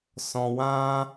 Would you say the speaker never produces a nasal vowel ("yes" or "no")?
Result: no